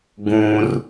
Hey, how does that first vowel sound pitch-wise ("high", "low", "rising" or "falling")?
low